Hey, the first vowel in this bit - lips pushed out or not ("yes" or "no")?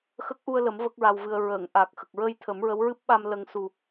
no